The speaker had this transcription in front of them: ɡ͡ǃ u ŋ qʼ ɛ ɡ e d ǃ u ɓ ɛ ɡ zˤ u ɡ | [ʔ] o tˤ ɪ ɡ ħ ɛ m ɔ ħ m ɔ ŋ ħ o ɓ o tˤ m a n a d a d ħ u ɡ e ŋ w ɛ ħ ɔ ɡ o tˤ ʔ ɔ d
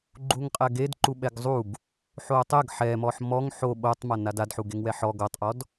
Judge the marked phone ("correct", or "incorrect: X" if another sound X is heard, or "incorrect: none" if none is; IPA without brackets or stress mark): incorrect: ħ